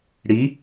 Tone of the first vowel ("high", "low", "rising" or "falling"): rising